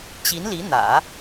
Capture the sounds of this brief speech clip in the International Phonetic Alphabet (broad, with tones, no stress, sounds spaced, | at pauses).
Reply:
t͡ɕ i˧˥ n l i˧˥ n̪ ä̰˨˩˦